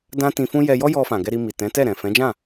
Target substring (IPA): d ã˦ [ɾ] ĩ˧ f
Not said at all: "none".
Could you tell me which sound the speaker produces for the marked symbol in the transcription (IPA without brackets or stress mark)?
t